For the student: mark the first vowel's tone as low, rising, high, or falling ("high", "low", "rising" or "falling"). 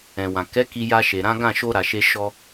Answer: low